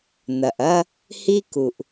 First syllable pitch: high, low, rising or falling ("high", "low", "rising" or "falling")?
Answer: low